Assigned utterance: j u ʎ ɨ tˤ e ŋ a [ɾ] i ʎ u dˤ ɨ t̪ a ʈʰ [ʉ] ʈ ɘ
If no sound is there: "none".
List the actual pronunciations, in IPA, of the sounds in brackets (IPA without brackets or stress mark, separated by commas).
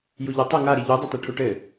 ɾ, u